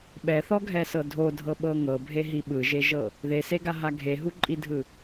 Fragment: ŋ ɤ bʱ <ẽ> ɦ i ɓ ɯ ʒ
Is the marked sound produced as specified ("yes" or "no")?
no